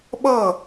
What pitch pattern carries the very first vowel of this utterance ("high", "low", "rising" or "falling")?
falling